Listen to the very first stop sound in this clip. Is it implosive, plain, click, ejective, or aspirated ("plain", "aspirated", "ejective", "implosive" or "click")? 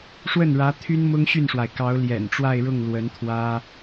aspirated